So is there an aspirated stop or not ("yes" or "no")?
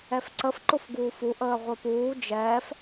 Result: no